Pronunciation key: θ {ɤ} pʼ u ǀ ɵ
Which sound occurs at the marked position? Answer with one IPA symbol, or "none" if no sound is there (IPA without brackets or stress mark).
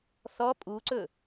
ɔ